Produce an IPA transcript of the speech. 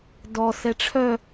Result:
d ɔ s ɛ ʈ͡ʂʰ œ

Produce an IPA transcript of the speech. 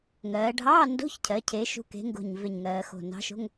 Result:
ŋ ɜː˩˧ ɖʱ ɑː˧˥˧ n d o̤˧˥˧ ç cʰ ɜ˩˧ cʰ eː˨˥ ʃ ṳ˧˥˧ k e̤˨˥ ŋ ɡ o̤˧˩ ɲ v e˧˩ ɲ ŋ ɜː˩˧ x o̤˧˩ n ɑ̤˨˥ ʃ o̤˧˥˧ ŋ

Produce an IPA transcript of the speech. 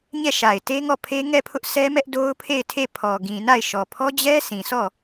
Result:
ɲ ɛ˦˨ ʃ a˨ ɪ̯ t e˦ ŋ ɔ˦˨ pʰ e˦ ŋ ɛ˦˨ pʰ ʊ˦ ʔ sʰ ɛ˦ m ɛ˦ ʔ d o˦ ʊ̯ pʰ e˦˨ ɪ̯ tʰ e˦˨ pʰ ɔ˨ ɡ ĩ˨ n a˦˨ ɪ̯ ʃ ɔ˨ pʰ ɔ˦ d͡ʑ ɛ˦ sʰ ĩ˨ s ɔ˦˨

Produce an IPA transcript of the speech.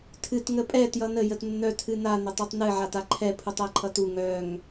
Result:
tʰ ɨ t ŋ ə pʼ ɛ t j ʌ n ə j ə t nː œ tʰ ɨ n a n ə tˤ æ tˤ n ɨ ʕ a t a ǃʰ ɛ pʰ u tˤ æ ǃʰ ʌ t u ŋ œ ŋ

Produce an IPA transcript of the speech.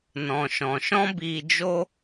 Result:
n ɔ̃˨ ʃ ɔ̃˨ ʃ ɔ̃˦ b iː˧ d͡ʒ o˦

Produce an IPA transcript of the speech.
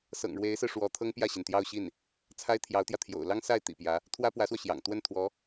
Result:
s ɤ̰˨˩ ŋ ɻ w e˧˥ ɪ̯ s ɹ̩˧ ʂ w ɔ˧˥ t̪ʰ ɤ˥ ŋ p j ä˥˩ ɕ i˩ n t̪ j ɑ˥˧ ʊ̯ ɕ i˥˩ n | t͡sʰ a˥ ɪ̯ t̪ʰ j ɑ˧˥ ʊ̯ t̪ j ä˧ t̪ʰ j o̰˨˩ ʊ̯ l ɑ˥ ŋ s a˥˩ ɪ̯ t̪ ḭ˨˩ p j ä˧˥ | t̪ʰ w ä˥ p w ä˧˥ s w ɔ˧ ɕ j ɑ̰˨˩ ŋ t̪ w ə˥˩ n t̪ʰ w ɔ˧˥

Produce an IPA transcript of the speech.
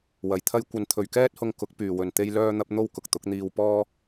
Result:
w ɐ˨ j t̪ʰ ɐ˥ j kʷ ɐ˧ n t̪ʰ ɵ˨ ɥ k ɛː˥ t̚ h ʊ˧ ŋ k ʊ˨˥ k̚ p yː˨ w ɵ˨ n t̪ e˥ j l œː˥ n̪ ɐ˥ p̚ n̪ o˥ w k ʊ˨ k̚ t̪ ʊ˨˥ k̚ n̪ iː˧ w p ɔː˥

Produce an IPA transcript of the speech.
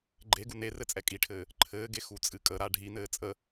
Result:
ɡ͡ǃ e ɡ u n e r ɘ t͡sʼ ɛ kʼ i ʈʰ ɘː | ǃʰ ɘː ɡ e x u t͡sʼ ɨ kʼ ə ɾ a ɖʱ i n ɘː t͡sʼ ə

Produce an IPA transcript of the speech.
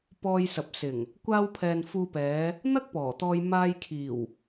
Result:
p ɔː˧ j s ɐ˨ p̚ s ɪ˨˩ ŋ | kʷ aː˧ w pʰ ɛː˨ n f uː˧ p ɛː˨˧ | n̪ ɐ˥ k̚ p ɔː˨˩ t̪ ɔː˧ j m aː˧ j kʰ iː˨˩ w

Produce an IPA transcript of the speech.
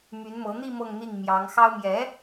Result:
m y˧˥ n m ɤ˧˥ n̪ i˥˧ m ɤ˥˧ ŋ n̪ i˥˩ ŋ m j ɑ˧˥ ŋ x ɑ˥ ʊ̯ m j ɛ˧˥

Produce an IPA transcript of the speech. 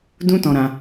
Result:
d ũ˦ t ɔ̃˧ ɾ ã˧

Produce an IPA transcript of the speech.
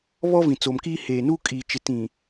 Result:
β ɔ˦ v ĩ˨ t͡s o˨ m k iː˦ h eː˨ n u˦ kʼ iː˨ t͡ʃ ɪ˨ t ĩ˨

